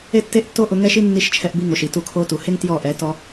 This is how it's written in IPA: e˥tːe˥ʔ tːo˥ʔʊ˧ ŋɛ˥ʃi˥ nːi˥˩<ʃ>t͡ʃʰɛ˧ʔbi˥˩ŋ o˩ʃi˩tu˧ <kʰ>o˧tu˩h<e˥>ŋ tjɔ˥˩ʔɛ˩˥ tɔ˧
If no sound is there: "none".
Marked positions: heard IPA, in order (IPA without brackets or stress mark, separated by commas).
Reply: ʃ, kʰ, e˥